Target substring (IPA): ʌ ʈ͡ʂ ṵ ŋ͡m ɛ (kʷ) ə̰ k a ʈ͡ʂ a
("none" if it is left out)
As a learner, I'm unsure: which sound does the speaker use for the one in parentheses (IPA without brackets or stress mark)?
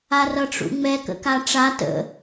k